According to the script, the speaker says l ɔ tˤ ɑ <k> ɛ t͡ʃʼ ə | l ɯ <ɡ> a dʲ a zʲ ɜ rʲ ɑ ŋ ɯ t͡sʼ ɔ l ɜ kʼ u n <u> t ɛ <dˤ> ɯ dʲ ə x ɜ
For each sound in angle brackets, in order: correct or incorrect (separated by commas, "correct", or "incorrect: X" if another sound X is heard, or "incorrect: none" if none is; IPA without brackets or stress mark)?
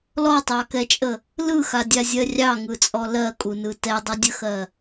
correct, incorrect: x, incorrect: ɯ, correct